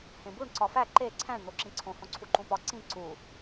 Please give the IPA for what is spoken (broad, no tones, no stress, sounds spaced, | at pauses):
h ẽ b u ɳ ǀ ɒ f æ ǃ e ǀʰ æ̃ ɳ n̪ o ǁ ĩ ǀʰ õ h õ ǀʰ u ǃ ũ p ɒ ǀ ĩ ǀ u